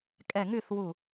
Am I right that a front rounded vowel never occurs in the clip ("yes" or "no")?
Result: no